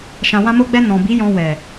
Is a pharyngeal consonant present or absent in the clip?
absent